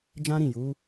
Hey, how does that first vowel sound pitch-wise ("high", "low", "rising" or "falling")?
high